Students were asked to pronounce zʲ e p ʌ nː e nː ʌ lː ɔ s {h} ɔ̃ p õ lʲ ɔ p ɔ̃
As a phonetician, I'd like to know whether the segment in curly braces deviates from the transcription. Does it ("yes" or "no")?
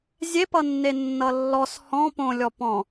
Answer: no